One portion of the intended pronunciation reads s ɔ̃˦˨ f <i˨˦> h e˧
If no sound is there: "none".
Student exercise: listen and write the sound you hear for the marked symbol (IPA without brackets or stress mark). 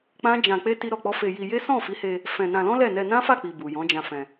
i˨˦